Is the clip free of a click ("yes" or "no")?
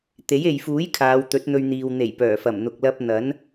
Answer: yes